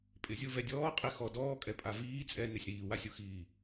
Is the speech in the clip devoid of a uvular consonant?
no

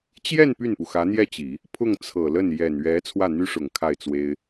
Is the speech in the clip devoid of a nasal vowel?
yes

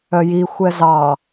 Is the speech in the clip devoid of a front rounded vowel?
no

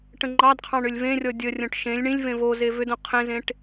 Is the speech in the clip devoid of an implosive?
yes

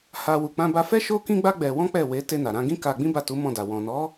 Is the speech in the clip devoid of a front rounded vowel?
yes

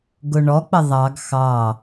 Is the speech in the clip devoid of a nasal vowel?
yes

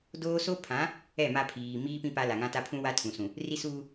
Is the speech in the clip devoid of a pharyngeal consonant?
yes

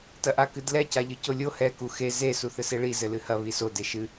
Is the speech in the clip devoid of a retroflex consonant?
no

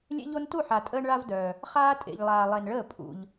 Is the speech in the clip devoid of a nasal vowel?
yes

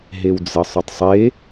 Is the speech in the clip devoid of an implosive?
yes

